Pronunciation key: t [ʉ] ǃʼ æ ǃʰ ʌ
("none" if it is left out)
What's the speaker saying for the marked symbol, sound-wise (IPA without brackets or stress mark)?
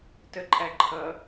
ə